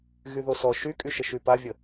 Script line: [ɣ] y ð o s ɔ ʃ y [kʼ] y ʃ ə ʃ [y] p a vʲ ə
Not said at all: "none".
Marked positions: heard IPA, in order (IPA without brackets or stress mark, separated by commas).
ɣ, kʼ, y